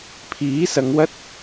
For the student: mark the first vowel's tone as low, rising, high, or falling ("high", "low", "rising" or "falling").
rising